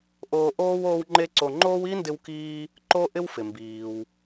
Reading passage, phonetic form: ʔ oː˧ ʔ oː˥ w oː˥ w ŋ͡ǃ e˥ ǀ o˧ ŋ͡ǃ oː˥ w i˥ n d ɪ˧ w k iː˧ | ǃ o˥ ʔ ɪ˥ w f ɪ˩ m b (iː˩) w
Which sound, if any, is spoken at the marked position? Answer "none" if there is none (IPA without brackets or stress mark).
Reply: iː˩